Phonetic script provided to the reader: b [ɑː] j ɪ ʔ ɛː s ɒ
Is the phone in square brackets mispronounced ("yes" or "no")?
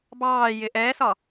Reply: no